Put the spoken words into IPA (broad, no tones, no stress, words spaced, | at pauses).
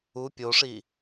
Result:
u pʲoʂi